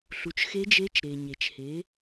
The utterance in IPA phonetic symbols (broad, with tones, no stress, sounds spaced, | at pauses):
ɬ u˩˧ t͡ʃ x e˧˥ d͡ʒ e˧˥ t͡ʃ ɾ e˩ ɲ e˩ t͡ʃ h e˩˧